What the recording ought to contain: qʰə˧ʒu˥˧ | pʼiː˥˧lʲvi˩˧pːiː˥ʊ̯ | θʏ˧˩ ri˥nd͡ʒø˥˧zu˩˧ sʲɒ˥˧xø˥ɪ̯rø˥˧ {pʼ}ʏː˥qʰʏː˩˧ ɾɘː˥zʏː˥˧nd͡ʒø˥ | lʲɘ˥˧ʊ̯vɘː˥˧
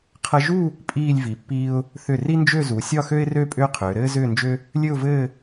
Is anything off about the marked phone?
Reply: no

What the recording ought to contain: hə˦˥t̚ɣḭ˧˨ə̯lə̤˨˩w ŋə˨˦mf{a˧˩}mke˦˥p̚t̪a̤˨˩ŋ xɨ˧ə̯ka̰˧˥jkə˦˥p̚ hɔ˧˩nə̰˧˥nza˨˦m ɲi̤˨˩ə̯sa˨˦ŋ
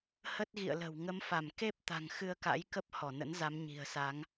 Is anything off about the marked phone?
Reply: no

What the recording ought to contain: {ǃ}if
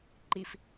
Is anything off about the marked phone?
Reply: no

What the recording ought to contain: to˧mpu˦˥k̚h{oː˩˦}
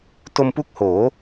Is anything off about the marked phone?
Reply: no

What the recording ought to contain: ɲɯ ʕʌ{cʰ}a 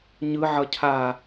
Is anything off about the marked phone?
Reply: no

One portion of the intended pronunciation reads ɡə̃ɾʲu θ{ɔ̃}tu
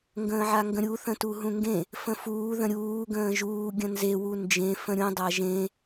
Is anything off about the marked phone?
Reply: yes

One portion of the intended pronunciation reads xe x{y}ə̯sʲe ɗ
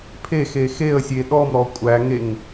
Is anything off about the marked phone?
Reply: yes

